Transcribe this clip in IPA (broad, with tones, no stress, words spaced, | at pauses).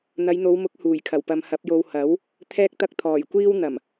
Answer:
n̪ɐ˨˧jn̪o˨˧wmʊ˨˥k̚ huː˨˩jkʰɐ˨˩wpɐ˨m hɐ˨˥p̚jo˧w hɐ˨˥w | t̪ʰɛː˧k̚t̪ɐ˧k̚ t̪ʰɔː˨˩jkʷiː˥w n̪ɐ˨˩m